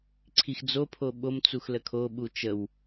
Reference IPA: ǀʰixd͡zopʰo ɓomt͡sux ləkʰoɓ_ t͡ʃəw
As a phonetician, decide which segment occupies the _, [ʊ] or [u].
u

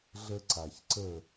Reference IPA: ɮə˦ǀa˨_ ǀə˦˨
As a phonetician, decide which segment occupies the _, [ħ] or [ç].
ç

